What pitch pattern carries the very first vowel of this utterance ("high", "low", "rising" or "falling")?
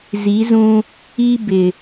rising